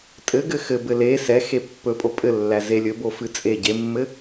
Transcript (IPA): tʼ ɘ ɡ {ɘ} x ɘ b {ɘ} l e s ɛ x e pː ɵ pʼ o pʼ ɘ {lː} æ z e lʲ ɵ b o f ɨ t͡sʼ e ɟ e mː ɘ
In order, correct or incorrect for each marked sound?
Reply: correct, correct, correct

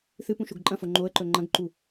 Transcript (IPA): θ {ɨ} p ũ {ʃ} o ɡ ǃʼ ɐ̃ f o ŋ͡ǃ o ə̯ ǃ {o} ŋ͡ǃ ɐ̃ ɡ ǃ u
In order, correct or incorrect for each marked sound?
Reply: correct, correct, incorrect: ɵ

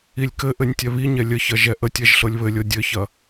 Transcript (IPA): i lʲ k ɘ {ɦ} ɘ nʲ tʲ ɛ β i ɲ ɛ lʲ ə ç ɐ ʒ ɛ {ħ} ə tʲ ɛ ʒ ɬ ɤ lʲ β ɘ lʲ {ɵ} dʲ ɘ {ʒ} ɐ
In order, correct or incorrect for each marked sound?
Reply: incorrect: ʔ, incorrect: ʔ, incorrect: ɤ, incorrect: ç

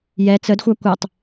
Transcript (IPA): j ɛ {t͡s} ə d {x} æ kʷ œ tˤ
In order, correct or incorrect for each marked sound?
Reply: correct, incorrect: xʷ

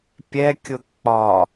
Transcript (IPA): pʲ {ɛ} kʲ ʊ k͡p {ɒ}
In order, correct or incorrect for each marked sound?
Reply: correct, correct

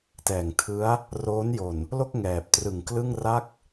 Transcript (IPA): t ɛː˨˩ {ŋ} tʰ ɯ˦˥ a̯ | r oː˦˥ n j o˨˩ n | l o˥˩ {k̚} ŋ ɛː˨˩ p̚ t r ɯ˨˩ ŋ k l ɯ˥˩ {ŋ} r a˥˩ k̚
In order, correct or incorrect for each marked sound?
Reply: correct, correct, correct

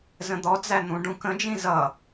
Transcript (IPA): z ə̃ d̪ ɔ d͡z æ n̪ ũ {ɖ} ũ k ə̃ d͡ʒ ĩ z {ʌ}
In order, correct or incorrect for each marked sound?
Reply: correct, correct

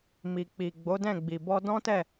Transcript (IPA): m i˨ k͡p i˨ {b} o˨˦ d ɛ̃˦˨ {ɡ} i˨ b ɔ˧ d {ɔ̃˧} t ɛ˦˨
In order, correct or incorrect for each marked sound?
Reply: incorrect: ɡ͡b, incorrect: ɡ͡b, incorrect: ɔ̃˦

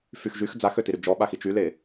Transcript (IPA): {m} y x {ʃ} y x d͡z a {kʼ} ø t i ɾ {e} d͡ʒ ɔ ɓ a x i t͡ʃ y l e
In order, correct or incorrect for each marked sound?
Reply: incorrect: f, incorrect: ʒ, incorrect: x, incorrect: y

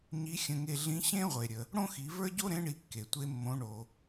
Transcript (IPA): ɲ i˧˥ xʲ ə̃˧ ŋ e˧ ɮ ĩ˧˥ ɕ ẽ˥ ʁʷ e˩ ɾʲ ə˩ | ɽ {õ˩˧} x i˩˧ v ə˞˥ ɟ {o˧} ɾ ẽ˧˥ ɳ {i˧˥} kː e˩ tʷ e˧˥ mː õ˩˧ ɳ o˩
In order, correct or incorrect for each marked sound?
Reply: incorrect: õ˥, incorrect: o˥, incorrect: i˩˧

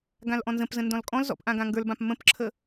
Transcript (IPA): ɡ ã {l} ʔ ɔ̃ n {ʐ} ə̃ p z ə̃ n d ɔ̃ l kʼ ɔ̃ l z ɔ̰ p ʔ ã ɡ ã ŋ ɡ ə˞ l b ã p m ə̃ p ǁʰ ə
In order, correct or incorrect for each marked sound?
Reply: correct, incorrect: z

